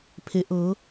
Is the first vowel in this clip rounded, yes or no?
no